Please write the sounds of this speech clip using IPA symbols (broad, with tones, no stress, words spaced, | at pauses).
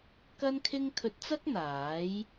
kɐ˥nkʰɪ˥ŋ kʰɵ˧t̚t͡sɐ˥k̚n̪aː˨˥j